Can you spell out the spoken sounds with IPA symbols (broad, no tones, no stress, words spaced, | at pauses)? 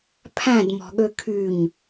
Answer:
pʰæ̃dmɔ̤ɠø kʰyɲ